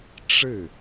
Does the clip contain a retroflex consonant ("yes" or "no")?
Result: yes